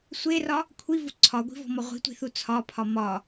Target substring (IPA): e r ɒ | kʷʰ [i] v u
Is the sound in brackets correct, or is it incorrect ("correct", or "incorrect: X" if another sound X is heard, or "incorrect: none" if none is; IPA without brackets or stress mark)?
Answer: correct